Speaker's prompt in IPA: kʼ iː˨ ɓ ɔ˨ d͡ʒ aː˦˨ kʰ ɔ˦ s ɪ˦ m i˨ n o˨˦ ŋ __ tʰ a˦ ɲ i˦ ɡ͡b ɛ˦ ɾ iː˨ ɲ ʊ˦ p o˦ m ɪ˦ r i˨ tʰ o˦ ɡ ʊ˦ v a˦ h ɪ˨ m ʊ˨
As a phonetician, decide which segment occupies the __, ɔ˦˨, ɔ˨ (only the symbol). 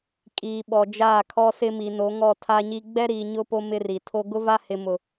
ɔ˦˨